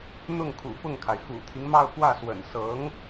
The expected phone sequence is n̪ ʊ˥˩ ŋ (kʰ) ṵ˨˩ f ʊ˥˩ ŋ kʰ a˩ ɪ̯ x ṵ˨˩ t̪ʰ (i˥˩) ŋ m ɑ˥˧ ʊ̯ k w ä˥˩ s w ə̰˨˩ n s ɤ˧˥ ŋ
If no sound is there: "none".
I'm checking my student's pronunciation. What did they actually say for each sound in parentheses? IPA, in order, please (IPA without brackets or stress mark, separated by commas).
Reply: kʰ, i˦